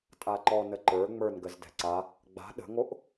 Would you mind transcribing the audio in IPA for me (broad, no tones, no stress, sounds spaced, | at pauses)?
tʼ a ǃ ɔ n ə ǃ ə˞ ŋ͡m ə˞ n ɡ ə z d ɛ̤ ǀ a | ɡ͡b a̤ ɗ ə̤ ŋ o ʔ